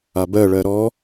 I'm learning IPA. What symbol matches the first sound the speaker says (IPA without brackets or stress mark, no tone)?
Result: a